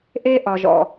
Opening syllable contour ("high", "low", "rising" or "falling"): high